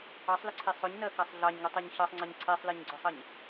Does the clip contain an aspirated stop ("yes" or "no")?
yes